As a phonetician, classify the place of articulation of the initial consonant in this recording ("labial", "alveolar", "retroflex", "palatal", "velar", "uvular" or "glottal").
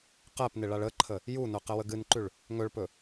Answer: uvular